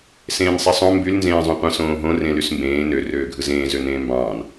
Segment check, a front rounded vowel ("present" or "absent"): present